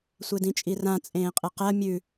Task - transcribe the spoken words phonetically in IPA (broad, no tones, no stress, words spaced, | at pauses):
sʷedĩt͡ʃʼirã t͡sʼẽːqʼeqɜ mʲʉ